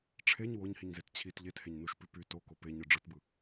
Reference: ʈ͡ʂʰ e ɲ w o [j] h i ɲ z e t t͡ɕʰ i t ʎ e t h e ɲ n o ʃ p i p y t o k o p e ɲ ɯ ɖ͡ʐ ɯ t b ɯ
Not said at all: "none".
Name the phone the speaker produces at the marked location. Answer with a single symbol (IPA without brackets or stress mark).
ɲ